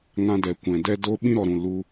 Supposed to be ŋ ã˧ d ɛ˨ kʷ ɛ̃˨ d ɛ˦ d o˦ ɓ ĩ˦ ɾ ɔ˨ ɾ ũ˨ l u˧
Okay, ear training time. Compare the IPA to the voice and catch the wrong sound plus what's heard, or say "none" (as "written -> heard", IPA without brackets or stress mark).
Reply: none